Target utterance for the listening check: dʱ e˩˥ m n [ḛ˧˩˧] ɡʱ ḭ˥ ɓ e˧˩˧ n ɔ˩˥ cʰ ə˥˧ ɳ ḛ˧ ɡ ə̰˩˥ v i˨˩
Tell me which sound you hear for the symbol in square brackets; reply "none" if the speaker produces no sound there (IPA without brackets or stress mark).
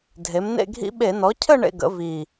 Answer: ḛ˥˧